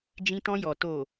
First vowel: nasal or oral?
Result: nasal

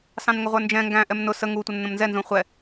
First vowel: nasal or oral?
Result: nasal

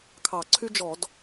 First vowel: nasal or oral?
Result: oral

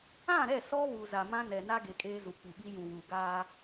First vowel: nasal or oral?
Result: nasal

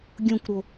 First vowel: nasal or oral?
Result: nasal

